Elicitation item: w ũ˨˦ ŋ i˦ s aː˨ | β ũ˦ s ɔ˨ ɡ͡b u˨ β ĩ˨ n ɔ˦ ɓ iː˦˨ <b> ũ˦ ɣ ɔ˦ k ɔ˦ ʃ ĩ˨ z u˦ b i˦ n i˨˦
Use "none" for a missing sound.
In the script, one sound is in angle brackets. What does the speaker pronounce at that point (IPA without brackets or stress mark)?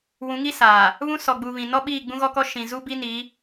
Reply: ɡ͡b